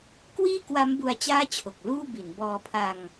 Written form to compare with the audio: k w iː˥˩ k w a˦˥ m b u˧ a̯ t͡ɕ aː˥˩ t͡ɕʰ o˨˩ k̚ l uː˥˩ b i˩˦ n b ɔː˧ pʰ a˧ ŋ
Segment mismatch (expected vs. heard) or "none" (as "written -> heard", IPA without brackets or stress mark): none